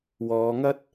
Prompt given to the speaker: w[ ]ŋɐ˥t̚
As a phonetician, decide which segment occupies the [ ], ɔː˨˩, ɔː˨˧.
ɔː˨˧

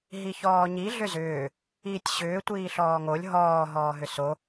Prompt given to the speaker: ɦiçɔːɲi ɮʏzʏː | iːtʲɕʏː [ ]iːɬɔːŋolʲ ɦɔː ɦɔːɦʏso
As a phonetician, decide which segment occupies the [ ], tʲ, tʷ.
tʷ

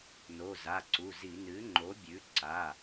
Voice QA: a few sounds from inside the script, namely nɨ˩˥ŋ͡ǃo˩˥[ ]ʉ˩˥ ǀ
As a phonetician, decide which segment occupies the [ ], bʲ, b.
bʲ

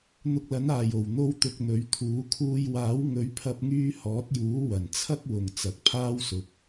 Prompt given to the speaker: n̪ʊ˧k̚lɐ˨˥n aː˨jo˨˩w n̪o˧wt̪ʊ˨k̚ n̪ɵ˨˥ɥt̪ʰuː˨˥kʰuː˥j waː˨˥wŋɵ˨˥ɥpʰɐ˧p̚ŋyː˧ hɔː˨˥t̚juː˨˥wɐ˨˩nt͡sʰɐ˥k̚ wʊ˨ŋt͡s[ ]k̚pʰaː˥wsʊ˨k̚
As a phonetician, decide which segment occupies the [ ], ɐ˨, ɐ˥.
ɐ˨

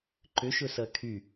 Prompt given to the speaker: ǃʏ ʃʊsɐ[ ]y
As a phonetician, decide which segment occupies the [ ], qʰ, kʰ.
kʰ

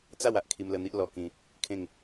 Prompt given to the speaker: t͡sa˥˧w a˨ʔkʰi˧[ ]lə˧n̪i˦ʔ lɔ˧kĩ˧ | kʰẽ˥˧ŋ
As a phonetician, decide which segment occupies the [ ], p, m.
m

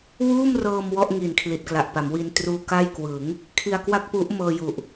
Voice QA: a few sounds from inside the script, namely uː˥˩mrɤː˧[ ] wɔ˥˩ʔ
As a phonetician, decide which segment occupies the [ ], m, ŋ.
m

